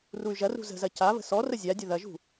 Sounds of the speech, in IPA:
r u y̯ ʒ ɐ r ṳ z ə̤ z ɐ c a β ə̤ s ɔ r ə zʲ a dʲ ə ð ɐ ʒ ṳ

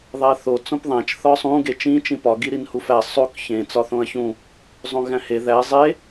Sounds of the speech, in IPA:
ðˤ æ θ o t͡s õ p ðˤ æ̃ t͡ʃ θ ɒ sˤ ũ ɡ e t͡ʃ ĩ t͡ʃ ĩ p ɒ ɡ i ɾ i n h u f æ sˤ o k ç ẽ t͡s ɒ θ õ ɐ̯ ç ũ | zˤ õ ɣ æ̃ h e ð æ zˤ e

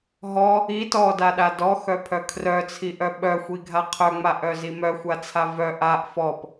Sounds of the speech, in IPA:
ɦ ɔ | i t ɔ d a ɗ a d ɔ x œ pʰ œ kʰ r œ t͡sʰ i ʔ œ ɓ œ xʷ i ɡʱ a qʰ œ ŋ͡m a ʔ œ z i m œ xʷ a t͡sʰ a v œ ʔ a ʔ f ɔ p

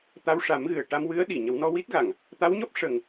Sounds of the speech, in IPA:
t̪ a˧ w ʂ a˨˩˦ m ɣ ɨ˨˩ ə̯ ʈ a˧ m w ɨ˧˥ ə̯ ɗ i˨˩˨ ɲ ə˨˩˦ w n ɔ˧ w i˦˥ t̚ ɣ a˨˩˨ ŋ | t̪ a˧˥ w ɲ ɔ˦˥ p̚ ʂ ə˨˩ ŋ

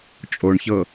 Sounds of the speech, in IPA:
t͡ʃʼ o ɳ ç ɤ

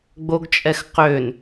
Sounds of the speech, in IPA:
ɡ͡b o ɡ t͡ʃʼ ɛ x q ø n

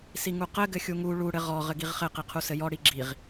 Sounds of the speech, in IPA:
s i ŋ u q ɘ ɡ ɘ xʲ u ŋ u ɭ u ɽ ɘ ʁ ɔ ʁ ɘ ɡ i ʁ χ ɘ q i qʰ u s ɘ j ɔ ɽ i ɡ͡ǁ i ʁ

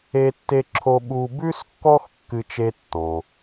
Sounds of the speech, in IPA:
e˥ tː e˥ ǁʰ o˥ ɓ u˧ b ʉ˥ s kː ɔ˥ x kː ɨ˥ t͡ʃ e˥ tː ɔ̃˩

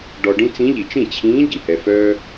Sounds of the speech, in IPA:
ɖ ɔ˧ ɖ ĩ˥ t͡s ĩ˧˥ ʎ i˨˩ t͡ʃ ĩ˥˩ t͡ɕʰ ĩː˧˥ ɟ i˨˩ h ɛ˧ f œː˥

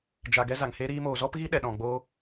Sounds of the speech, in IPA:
d͡ʒ a˨ ɡ ɛ˧ z a˨ ŋ h e˦ ɾ iː˦ m oː˧ z ɔ˦ p ɣ i˦ ɗ ɛ˨ ɗ ɔ̃˨ ɡ͡b oː˦

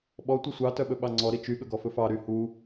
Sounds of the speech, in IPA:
ɓ ɔ tʷ i sʷ ɑ t œ ɓ ɵ ɓ ɑ ŋ͡ǀ ɔ ɾ i t͡ʃ y ɠ ɵ ɡ ɔ f ɵ f ɑ ɾ y h u

